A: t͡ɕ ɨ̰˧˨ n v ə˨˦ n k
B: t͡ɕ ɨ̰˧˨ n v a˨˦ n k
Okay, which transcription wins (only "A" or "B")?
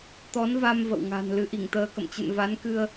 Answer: B